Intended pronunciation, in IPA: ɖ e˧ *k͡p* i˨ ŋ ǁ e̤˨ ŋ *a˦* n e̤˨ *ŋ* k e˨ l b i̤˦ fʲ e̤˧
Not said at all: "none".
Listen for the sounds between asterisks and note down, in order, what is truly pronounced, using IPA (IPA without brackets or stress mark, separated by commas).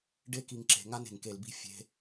k, a˦, ŋ